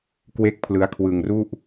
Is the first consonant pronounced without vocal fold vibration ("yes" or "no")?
yes